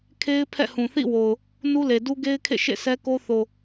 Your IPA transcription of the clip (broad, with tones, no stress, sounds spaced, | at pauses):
kʰ e˦ ɪ̯ pʰ ɛ̰˦˨ h ũ˨ θ ḭ˦˨ w o˨ ʊ̯ | n u˦ l e˨ d u˦ ɡ e˦ ɪ̯ kʰ ḛ˦˨ ʃ ḛ˦˨ s ɛ˦ k o˦ θ o˨